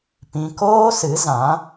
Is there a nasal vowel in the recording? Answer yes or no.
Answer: yes